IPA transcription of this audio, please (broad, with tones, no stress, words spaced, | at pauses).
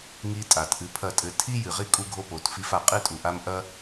ŋi˧ tʼa˨tʔɨ˧pʰɐ˦˨tʼɘ˧ tʰi˦ jɨ˨ʁi˦ kʼu˦ɡʱo˦po˨˦t fi˧fa˨qʼɨ˦tʼu˨ ʔa˦m ʔɐ˦